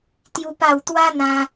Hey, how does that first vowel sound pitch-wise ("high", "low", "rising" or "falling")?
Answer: high